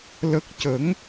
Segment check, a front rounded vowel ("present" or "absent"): absent